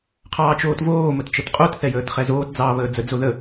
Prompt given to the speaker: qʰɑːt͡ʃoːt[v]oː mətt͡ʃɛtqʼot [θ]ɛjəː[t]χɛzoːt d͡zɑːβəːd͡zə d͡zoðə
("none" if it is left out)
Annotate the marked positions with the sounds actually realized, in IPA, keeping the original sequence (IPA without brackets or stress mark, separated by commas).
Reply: v, θ, t